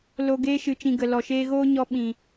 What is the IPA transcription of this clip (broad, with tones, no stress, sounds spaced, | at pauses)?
l o˧ ɡ eː˧ ʃ ɨ˨ t͡ʃ ĩ˨ ɡ ə˨ l ɔ˨ ʃ eː˧ ɣ oː˦ ɲ ɔ˧ ɓ ĩ˨